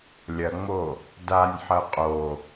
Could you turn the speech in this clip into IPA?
lʲ ɐ ŋ͡m o | d a nʲ ħ ɐ qʼ o

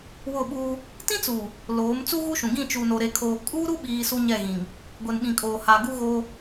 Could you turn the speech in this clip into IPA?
w ʊ˦˨ ɓ uː˦ | t ĩ˦ t͡s uː˨ | l oː˨˦ m t͡s u˦ ɣ u˦ ʃ ũ˨ ɡ ĩ˦˨ t͡ʃ u˨ n o˨ ɾ e˨ kʰ oː˨ kʼ u˦ ɾ u˦ ɓ iː˨ s u˦ ɲ ɛ˦˨ ɣ ĩ˨ ŋ | ɡʷ e˨ n ɓ ĩ˨ kʼ oː˨ h aː˨ ɡ u˦ ɣ oː˦

